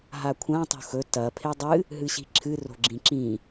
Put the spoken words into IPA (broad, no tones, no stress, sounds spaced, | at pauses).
ɦ a kʷʰ ã tˤ o̤ x ɵ t ɐ pʰ e dˤ ɨ | ɦ ɨ ɕ i̤ ǁʰ ɨ r o̤ ɡ͡ǁ ĩ ǁ ĩ